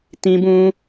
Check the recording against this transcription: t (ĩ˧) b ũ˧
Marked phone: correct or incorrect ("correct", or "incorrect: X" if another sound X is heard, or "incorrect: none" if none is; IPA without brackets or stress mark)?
correct